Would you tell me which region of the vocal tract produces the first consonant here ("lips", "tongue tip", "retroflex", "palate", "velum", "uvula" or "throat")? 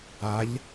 palate